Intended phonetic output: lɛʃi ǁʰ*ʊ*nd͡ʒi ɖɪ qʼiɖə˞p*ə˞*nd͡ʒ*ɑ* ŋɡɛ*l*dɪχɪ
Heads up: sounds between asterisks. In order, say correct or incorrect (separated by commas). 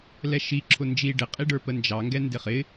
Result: correct, incorrect, correct, incorrect